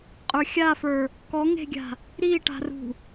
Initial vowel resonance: oral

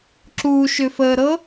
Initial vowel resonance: oral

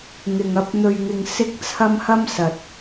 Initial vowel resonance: oral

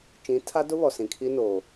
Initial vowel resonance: nasal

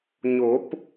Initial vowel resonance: oral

